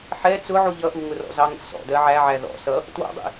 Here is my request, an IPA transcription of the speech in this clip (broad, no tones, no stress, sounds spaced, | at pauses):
ħ ɛ t͡s ʊ ʕ u ʎ ʌ ʔ u ŋ ʊ r ɔ̰ z ɑ ŋ ə̰ s ɔ̰ d ɜ ʕ æ ʕ æ ð ɔ̰ s ʌ | t w ɔ̰ dˤ ḭ